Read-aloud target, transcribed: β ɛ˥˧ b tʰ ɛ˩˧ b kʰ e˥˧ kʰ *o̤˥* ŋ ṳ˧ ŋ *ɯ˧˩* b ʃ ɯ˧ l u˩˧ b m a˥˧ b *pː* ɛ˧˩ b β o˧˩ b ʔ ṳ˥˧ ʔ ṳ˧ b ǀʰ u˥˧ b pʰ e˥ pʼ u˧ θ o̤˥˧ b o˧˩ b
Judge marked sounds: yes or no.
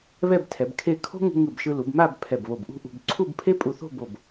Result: yes, yes, no

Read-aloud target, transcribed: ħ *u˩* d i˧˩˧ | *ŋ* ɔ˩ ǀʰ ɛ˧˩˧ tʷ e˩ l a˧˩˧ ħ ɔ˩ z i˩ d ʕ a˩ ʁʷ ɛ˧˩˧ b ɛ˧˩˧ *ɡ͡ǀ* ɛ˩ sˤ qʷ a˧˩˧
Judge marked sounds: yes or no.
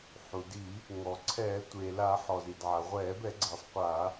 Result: yes, yes, yes

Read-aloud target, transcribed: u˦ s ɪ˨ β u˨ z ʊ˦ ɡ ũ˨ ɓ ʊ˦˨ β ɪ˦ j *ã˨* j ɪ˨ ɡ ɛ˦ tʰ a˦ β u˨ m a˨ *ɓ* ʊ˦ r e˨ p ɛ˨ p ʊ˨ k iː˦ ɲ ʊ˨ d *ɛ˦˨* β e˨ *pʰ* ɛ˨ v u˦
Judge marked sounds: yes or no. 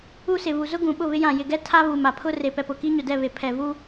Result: yes, no, yes, yes

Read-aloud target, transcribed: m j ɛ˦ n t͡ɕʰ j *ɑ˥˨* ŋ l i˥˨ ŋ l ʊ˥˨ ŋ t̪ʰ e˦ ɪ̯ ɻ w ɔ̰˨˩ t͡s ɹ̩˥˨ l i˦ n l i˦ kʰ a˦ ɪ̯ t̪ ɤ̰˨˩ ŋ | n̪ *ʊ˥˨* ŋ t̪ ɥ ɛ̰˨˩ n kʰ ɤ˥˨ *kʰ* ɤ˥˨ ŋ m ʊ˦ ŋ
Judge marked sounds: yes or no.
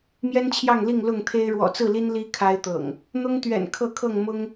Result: yes, no, yes

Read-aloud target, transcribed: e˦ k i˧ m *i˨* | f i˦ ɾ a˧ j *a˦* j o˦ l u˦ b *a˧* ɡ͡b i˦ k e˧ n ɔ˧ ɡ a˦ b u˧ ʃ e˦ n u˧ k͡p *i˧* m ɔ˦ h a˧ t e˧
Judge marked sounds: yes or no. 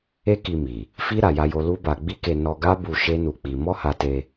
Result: yes, yes, yes, yes

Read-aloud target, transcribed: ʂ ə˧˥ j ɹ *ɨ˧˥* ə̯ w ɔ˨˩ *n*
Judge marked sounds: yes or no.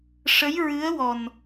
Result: yes, yes

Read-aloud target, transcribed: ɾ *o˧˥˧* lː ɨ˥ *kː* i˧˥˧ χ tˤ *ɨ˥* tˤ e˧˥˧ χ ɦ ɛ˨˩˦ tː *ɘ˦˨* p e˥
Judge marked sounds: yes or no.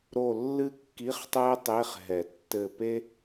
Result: no, yes, no, yes

